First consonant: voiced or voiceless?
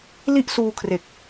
voiced